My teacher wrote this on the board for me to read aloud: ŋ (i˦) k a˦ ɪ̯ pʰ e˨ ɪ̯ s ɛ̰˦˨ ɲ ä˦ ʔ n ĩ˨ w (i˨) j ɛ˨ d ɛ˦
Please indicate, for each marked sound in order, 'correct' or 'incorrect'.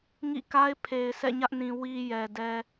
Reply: incorrect: ḭ˦˨, correct

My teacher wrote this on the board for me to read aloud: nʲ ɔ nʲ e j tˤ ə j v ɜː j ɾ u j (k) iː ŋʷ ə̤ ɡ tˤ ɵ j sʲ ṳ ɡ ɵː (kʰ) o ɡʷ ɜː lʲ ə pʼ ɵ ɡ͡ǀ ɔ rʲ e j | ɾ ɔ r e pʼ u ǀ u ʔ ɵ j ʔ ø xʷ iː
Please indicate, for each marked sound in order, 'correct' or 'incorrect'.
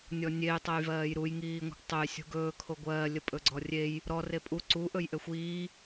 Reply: incorrect: ŋ, correct

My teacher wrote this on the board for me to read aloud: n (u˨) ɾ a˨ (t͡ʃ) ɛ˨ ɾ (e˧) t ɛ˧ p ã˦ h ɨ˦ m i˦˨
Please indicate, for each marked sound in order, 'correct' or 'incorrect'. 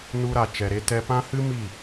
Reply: incorrect: u˧, correct, correct

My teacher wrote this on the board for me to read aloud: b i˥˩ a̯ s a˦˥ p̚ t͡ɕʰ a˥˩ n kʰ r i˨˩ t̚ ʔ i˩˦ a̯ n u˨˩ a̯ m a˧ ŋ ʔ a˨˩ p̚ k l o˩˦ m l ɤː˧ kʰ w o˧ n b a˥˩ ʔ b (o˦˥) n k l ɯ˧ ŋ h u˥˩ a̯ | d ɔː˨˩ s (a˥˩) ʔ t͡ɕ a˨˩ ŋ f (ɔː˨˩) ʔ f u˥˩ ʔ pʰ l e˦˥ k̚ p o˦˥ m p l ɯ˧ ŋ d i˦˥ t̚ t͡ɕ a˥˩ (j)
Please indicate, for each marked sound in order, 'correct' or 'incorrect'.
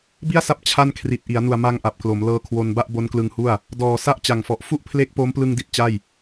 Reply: correct, correct, incorrect: ɔ˨˩, correct

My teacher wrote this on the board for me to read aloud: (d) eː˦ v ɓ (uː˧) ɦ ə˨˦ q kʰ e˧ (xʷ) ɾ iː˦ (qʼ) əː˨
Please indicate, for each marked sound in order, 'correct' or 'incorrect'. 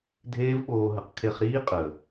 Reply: incorrect: dʱ, incorrect: oː˧, incorrect: χ, correct

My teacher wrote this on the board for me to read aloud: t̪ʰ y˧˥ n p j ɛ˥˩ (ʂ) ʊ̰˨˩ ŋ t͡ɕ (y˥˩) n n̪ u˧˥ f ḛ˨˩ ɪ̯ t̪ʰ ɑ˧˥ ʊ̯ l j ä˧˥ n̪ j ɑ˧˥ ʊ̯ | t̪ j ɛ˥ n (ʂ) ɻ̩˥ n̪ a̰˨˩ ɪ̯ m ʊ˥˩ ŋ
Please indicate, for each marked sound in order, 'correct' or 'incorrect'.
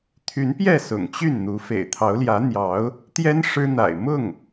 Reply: incorrect: s, correct, correct

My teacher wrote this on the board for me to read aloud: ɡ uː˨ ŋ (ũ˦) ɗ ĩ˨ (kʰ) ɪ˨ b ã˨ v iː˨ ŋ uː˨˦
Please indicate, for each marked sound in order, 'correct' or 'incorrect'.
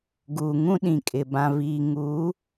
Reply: correct, incorrect: kʼ

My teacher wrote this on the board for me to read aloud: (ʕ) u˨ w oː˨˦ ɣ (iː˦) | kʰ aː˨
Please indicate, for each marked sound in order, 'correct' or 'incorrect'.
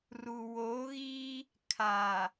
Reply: incorrect: r, correct

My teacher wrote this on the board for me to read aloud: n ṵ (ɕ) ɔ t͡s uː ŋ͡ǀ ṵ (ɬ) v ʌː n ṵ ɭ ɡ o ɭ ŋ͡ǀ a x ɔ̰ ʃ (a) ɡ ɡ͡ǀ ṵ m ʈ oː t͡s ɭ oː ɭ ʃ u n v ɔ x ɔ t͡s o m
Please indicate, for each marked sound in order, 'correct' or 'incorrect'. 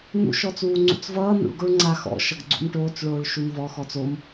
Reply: incorrect: ʃ, incorrect: t͡s, incorrect: ʌ

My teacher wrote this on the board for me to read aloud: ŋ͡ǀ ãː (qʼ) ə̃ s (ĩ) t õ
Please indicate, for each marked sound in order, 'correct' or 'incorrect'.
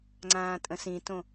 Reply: incorrect: tʼ, correct

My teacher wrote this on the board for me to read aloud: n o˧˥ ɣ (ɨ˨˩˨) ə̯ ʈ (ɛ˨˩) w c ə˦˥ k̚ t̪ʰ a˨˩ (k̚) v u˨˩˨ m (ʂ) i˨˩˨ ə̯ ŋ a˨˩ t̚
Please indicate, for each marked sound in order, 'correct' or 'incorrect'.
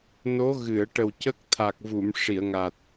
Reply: correct, incorrect: ə˨˩, correct, correct

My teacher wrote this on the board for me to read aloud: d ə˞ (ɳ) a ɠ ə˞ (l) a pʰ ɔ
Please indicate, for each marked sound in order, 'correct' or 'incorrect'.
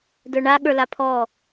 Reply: correct, correct

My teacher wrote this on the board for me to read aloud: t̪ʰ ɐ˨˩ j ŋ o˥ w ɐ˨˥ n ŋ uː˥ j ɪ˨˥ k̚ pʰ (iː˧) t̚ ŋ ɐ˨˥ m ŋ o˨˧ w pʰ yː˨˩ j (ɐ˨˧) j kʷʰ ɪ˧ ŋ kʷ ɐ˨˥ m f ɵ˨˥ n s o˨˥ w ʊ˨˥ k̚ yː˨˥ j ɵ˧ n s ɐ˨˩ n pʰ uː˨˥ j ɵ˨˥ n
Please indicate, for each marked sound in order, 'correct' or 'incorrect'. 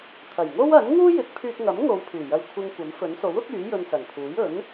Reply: incorrect: yː˧, incorrect: ɐ˧

